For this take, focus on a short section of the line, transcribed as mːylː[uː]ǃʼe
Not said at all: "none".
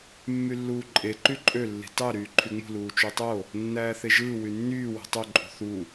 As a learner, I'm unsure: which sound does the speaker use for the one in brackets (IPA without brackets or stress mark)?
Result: uː